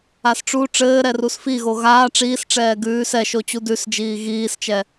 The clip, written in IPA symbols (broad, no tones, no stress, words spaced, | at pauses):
asʈ͡ʂu ʈ͡ʂɘːɾɛrus fiɣo ɣaː ʈ͡ʂiːsʈ͡ʂɛː ɡʉːs ɛʃot͡ɕu dʉs d͡ʒiːɣiːst͡ʃɛ